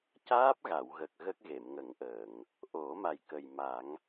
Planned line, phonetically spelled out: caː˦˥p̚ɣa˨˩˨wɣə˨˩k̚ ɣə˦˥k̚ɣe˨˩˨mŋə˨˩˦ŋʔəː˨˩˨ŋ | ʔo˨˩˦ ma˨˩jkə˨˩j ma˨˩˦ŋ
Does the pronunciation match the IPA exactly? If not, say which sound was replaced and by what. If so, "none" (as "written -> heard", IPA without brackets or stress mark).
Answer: none